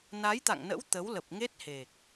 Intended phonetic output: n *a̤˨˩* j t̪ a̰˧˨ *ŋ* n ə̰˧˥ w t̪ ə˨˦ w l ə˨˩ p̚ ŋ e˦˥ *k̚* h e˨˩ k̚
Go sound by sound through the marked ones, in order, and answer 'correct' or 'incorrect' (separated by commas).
incorrect, correct, incorrect